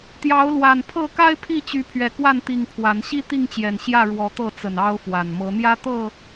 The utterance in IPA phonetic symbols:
t̪ j ɑ˨˦ ʊ̯ l w a˨˩ n pʰ ɤ˥˨ k a˦ ɪ̯ pʰ i˥˨ t͡ɕ y˨˦ pʰ ɥ ɛ˨˩ k w a˥˨ n t̪ i˨˩ ŋ pʰ w a˨˦ n ɕ i˦ t̪ i˥˨ ŋ t͡ɕ j ɛ˨˩ n ɕ j ä˥˨ ɻ w ɔ˨˦ t̪ ɤ˥˨ t͡s ə˨˩ n ɑ˦ ʊ̯ f w a˨˩ n m ɤ˨˦ n̪ j ä˦ t̪ ɤ˥˨

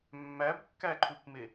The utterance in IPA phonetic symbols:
mː æ b kː æ ǃʰ u p m e

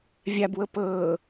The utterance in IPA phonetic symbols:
vʲ a b w ɤ p ɤː

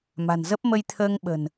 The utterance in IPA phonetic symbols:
m a̤˨˩ n z ə˦˥ p̚ m ə˧ j t̪ʰ əː˧ ŋ ɓ ə̤˨˩ n

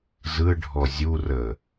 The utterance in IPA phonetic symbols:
z ɯ ɖʱ ɔ zʲ u r ə

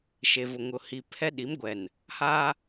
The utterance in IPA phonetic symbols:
ʃ e˨ v ʊ˨ ŋ ʊ˨ h i˨ pʰ ɛ˦ ɗ i˨˦ m ɡʷ ɛ˨ n | h aː˦

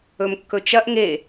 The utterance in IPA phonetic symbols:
ɵ m kː ɵ t͡ʃ ɐ ʔ ŋ e

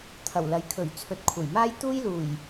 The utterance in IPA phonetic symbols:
t̪ʰ ɐ˨˩ w l ɐ˨˥ j kʰ ɵ˨˩ ɥ t͡sʰ ɵ˨˥ t̚ kʷʰ ɐ˨˩ j m aː˥ j t̪ uː˥ j l uː˨˩ j

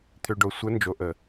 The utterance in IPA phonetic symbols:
t̪ʰ ø˨ ɖ o˨ sʷ ə˨˦ n d͡ʒ o˨ ʔ ə˨

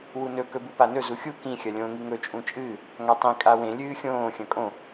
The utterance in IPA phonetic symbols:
w u n ɵ k ɵ b u p a n ɵ z u xʲ u k ĩ xʲ ɐ lʲ õː ŋ i ŋ ɵ t͡ʃʼ ũ t͡ʃʼ ɨː | ŋ a tˤ ĩ kʼ a w ẽ lʲ ɨː xʲ õː xʲ ɐ̃ kʼ õ

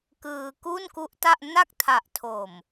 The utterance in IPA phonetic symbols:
k ɯː˧ k u˥˩ n k u˦˥ ʔ t a˥˩ ʔ n a˥˩ k̚ tʰ a˨˩ ʔ tʰ o˨˩ m

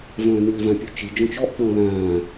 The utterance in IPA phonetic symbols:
v œ̃ː n y l v ã pʲ u t͡ʃ i d͡ʒ ɔ̃ t͡ʃ ɔ ʔ k͡p ɔ̃ l ã

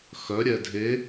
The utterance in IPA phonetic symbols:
x œ ɾʲ ɛ dʱ e

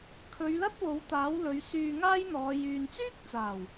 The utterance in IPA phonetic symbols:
kʰ ɵ˨˧ ɥ l ɐ˥ t̚ w o˨˥ w t̪ aː˨˥ w l ɵ˨˧ ɥ s yː˧ ŋ aː˥ j n̪ ɔː˨˧ j yː˨ n t͡s yː˥ k̚ t͡s aː˨˩ w

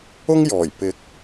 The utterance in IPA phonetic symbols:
ʊ˥ ŋ j ɔː˨˩ j p ɪ˨˥ k̚

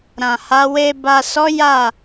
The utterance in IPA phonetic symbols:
ɾ ã˨ h a˨˦ w e˧ b a˨ s ɔ˨˦ j a˦˨

